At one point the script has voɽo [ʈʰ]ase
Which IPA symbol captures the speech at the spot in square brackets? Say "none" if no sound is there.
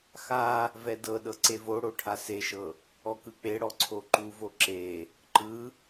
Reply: ʈʰ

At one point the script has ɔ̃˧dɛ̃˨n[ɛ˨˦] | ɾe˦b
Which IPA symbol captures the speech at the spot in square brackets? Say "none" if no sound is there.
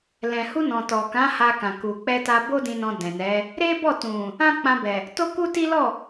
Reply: ɛ˨˦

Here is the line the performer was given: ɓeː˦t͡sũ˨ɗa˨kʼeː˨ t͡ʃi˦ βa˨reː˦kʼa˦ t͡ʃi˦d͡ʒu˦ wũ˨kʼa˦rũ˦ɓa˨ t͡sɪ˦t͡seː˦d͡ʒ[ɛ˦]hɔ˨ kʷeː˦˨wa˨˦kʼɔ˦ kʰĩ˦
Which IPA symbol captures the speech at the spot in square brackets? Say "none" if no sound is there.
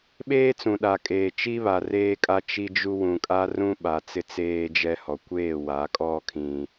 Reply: ɛ˦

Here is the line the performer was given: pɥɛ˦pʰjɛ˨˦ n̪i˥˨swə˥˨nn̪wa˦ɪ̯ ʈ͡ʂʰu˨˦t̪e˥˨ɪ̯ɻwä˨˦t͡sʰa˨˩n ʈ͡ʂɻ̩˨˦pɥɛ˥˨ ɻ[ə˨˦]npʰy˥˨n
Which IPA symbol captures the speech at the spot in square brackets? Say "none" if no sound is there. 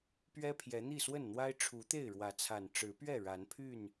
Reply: a˨˦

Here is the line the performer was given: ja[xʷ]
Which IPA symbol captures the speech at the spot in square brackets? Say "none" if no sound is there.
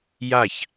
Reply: ç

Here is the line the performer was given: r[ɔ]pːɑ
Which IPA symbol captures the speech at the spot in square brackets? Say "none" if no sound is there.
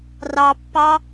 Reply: ɑ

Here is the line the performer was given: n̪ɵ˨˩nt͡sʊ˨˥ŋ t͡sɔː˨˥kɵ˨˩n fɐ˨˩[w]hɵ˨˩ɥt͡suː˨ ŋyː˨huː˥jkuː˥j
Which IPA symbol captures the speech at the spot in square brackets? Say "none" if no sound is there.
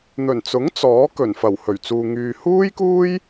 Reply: w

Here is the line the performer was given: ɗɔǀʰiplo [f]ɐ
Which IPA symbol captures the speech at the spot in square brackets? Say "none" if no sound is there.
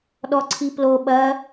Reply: ɓ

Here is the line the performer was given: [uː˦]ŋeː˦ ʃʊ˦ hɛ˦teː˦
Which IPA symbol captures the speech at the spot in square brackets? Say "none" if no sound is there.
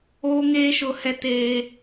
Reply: oː˦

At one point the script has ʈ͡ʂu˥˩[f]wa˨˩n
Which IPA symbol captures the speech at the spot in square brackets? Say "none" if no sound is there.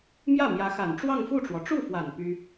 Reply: f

